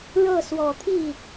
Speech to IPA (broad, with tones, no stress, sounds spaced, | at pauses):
ɻ ɤ˥˩ s w ɔ˨˩ t̪ʰ i˥˩